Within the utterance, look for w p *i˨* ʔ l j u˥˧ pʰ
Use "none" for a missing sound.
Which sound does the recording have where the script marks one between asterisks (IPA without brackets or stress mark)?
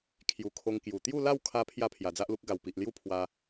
i˨